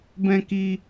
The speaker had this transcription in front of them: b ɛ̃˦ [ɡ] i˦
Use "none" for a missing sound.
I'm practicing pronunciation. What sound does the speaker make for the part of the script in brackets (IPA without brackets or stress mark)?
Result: k